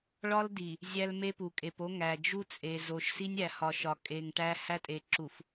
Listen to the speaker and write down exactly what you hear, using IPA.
ɭ ɒ˦ l d i˨ | zʲ æ˦ l m e˦ p u˨ kʼ e˨ p o˦ ŋ æ˨ d͡ʒ u˦ t͡sʼ e˨ z o˨ ʃ s i˦ nʲ æ˨ h ɒ˨ ʃ ɒ˨ kʼ e˨ ŋ ʈ æ˦ h æ˦ tʼ e˨ ǁ u˨ f

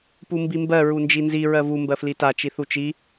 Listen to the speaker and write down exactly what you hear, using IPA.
p u m b i m b ɜ ɹ u n d͡ʒ i n z i ɹ ɜ v u m b ɜ f l i t a t͡ʃ i θ u t͡ʃ i

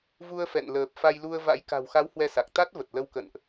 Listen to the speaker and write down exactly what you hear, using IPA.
v u˧ ə̯ f ɛ̰˧˨ n l əː˨˩ p̚ f a˧ j l u˧ ə̯ v a̰˧˥ j k a̤˨˩ w x a˨˦ w h w ɛ˧ s a˨˩ k̚ t̪ a˦˥ t̚ v ə˨˩ t̚ l ə˧ w k ə̰˧˨ n ʔ

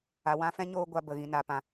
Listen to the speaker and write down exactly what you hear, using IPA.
a˨ w ã˧ f ɛ̃˦ ɲ oː˧ ɡʷ a˨ b ə˨ ɣ ĩ˨ n a˨ p ã˨

